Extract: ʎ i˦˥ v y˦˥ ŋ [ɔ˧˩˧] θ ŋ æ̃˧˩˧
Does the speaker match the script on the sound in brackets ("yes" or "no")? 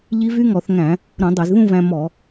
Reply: yes